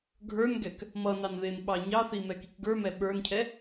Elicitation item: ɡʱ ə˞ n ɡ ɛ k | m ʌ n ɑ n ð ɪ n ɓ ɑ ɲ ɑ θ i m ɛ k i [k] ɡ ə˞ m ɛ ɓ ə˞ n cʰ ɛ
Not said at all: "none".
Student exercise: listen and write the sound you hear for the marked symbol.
k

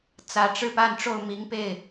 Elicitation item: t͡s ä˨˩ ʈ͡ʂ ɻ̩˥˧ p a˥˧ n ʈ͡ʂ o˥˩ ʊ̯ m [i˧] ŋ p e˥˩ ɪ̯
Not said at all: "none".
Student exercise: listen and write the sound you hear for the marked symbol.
i˧˥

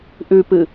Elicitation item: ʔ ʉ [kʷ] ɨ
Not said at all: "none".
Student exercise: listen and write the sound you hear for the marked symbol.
p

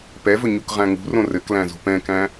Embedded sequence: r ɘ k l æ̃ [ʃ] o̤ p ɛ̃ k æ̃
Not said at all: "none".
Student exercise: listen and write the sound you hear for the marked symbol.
z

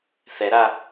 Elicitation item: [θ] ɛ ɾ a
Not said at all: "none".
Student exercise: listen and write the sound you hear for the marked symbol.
θ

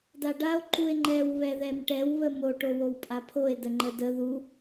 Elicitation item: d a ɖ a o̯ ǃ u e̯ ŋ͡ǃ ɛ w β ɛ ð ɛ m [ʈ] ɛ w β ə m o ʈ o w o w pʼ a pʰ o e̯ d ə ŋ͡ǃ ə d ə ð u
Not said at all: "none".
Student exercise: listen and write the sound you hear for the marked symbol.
ʈ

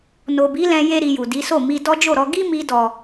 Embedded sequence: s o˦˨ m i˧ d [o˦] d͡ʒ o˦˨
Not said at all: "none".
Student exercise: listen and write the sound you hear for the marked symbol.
ɔ˦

